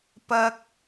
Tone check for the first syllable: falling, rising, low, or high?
low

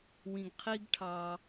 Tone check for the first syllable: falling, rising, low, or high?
low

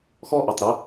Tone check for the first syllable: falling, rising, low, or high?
high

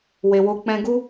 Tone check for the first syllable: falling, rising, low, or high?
low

